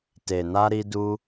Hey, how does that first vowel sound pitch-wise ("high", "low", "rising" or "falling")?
low